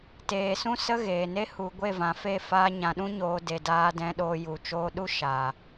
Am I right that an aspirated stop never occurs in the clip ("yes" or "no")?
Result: yes